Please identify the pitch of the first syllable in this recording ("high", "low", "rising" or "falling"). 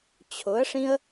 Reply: rising